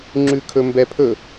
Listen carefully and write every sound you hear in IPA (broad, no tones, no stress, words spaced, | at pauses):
ŋ͡ǁʉkʰɵmbɛpʰɵ